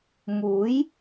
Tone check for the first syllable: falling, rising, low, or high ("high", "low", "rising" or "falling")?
rising